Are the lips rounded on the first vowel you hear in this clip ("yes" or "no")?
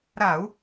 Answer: no